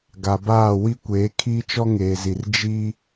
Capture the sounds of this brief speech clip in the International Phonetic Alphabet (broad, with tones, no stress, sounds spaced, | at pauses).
ɡ a˨ b aː˦˨ w i˦ kʷ eː˨˦ kʰ iː˦ t͡ʃ ɔ˦ ŋ eː˨ z i˨ r d͡ʒ i˦